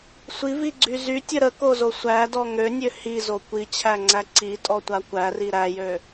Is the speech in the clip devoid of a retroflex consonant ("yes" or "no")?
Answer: yes